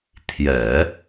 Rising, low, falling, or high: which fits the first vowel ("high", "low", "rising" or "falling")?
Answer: low